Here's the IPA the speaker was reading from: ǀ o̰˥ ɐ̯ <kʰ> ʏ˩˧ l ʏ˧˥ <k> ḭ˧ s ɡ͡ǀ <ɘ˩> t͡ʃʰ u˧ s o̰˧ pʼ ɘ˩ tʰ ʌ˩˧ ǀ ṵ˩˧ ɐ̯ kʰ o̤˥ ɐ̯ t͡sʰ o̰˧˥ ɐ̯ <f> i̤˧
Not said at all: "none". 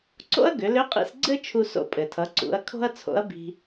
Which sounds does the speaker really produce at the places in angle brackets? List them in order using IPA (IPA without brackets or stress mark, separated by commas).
ɡ, qʼ, ɘ˥, b